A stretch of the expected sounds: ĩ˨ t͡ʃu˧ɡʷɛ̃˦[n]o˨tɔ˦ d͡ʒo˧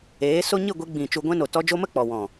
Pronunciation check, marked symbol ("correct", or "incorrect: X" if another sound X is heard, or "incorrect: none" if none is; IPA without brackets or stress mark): correct